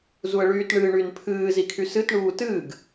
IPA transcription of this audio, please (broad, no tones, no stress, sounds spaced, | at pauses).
z u ə̯ ɭ yː t ɳ ɨ ɳ y n pʰ ɨː z i kʰ y s ɨ t ɳ uː t ɨː ɡ